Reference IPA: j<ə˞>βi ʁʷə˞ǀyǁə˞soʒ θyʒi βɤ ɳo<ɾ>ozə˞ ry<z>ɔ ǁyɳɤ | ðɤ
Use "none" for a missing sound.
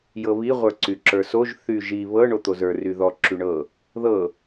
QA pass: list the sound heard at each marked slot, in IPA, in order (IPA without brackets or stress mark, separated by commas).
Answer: ɤ, t̪, ð